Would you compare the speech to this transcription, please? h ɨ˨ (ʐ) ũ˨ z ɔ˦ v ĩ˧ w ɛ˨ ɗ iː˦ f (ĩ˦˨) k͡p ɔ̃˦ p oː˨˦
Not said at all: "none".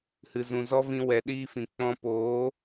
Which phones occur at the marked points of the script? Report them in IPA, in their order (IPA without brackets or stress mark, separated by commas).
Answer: z, ĩ˨